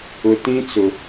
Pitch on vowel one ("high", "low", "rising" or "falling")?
low